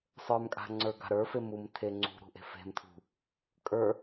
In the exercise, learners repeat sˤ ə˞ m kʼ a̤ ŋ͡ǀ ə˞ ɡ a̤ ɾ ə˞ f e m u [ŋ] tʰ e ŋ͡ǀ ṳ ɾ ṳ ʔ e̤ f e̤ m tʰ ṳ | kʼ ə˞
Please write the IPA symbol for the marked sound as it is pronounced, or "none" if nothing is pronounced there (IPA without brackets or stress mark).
m